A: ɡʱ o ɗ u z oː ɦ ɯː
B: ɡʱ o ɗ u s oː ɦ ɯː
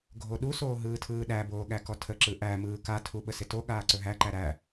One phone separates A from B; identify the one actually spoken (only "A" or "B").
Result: B